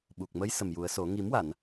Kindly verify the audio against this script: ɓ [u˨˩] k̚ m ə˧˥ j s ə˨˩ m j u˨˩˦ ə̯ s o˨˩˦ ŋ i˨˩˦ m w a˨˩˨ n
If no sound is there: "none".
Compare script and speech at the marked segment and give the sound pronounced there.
u˨˩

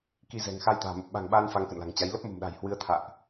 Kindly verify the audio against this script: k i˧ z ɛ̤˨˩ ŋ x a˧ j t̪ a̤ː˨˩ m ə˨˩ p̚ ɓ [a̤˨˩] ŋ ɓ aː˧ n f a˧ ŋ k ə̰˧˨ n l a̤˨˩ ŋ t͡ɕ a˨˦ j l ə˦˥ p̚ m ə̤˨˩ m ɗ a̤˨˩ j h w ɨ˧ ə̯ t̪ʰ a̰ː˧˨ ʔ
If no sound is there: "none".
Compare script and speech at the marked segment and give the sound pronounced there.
a̤˨˩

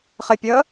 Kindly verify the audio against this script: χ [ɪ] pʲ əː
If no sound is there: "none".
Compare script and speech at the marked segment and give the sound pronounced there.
ɪ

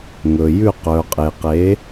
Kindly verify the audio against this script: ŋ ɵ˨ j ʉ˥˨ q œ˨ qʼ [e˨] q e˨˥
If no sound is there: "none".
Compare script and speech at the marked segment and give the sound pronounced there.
e˨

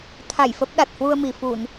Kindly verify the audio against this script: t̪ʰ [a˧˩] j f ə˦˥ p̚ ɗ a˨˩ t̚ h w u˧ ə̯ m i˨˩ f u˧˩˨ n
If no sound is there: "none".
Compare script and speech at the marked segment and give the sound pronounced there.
a˧˩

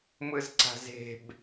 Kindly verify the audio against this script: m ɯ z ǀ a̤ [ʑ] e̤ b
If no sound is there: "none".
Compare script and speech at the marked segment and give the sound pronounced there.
z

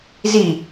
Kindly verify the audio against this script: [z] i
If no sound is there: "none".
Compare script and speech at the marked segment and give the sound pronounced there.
z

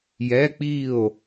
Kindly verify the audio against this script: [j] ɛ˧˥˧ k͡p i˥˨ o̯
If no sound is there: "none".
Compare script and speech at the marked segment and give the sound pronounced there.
j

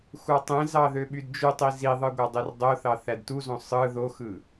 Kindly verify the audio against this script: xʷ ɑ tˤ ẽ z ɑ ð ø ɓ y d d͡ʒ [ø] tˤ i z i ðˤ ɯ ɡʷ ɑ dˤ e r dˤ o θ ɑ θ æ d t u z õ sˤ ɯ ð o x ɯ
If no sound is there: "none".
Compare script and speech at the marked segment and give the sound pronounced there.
y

